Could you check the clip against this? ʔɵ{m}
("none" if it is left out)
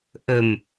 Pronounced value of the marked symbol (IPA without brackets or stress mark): m